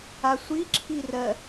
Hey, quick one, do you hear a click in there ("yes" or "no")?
yes